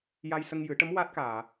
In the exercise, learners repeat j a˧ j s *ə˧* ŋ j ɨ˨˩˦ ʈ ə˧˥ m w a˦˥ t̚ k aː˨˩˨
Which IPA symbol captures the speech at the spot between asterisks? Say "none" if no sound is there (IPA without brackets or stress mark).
ə˧